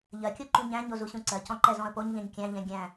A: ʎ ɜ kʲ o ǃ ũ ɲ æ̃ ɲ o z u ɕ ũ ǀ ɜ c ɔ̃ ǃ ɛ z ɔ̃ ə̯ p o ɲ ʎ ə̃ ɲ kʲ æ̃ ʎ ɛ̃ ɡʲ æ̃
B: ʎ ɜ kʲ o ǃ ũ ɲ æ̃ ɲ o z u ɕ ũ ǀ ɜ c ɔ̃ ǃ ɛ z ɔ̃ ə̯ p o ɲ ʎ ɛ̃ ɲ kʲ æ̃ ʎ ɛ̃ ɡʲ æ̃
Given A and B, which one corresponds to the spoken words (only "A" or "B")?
B